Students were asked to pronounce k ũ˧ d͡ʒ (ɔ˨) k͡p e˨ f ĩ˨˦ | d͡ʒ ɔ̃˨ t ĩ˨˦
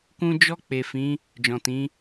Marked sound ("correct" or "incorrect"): incorrect